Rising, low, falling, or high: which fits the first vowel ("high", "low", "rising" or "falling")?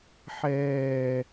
falling